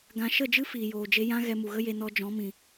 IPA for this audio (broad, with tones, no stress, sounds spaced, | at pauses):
ɡ ã˧ ʃ ə˦˨ d͡ʒ ɨ˦ f iː˨ j oː˨ d͡ʒ e˧ j ã˦ ɣ ɛ˧ m u˨ ɣ ə˦ j e˧ n ɔ˧ d͡ʒ ɔ̃˨˦ m ĩ˨